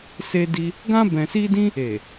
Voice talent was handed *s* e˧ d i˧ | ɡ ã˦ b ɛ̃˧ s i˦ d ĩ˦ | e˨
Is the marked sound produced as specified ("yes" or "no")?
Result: yes